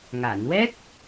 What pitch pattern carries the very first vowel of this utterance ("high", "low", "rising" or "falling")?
low